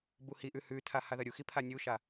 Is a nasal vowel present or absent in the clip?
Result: absent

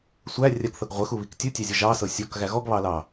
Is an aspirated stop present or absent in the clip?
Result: absent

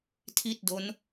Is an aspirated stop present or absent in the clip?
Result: present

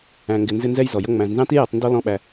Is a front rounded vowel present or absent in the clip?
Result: absent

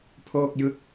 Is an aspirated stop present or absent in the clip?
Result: present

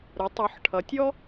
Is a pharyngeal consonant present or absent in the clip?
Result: present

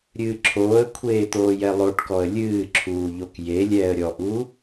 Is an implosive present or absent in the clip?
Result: absent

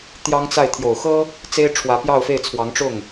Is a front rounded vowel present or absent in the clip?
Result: absent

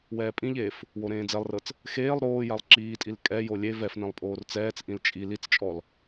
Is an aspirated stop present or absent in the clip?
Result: absent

